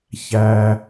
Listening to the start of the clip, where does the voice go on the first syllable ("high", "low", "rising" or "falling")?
low